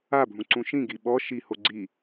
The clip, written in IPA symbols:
a bʱ ũ ǀ ũ ʃ ĩ ɡ i ɓ ɔ ʃ i h o ɡ͡ǀ i

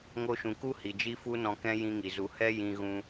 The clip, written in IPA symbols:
ŋ o˧ ʃ ũ˨ k u˦ h i˨ d͡ʒ i˦ f u˦ n ɔ̃˧ k ɛ̃˦ j ĩ˦ ŋ i˨ z u˧ h ɛ˦ j ĩ˧ ɣ ũ˧

